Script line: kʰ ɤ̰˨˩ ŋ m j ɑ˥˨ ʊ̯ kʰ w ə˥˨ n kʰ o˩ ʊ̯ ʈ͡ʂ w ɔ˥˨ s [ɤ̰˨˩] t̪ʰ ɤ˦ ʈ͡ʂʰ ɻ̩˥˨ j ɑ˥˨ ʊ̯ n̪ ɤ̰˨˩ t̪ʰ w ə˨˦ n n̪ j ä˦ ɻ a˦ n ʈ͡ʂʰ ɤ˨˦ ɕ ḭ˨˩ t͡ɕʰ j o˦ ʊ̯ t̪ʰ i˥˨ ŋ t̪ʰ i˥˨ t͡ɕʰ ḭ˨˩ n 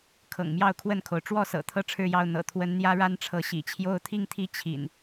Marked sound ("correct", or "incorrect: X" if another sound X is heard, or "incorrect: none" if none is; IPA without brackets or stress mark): correct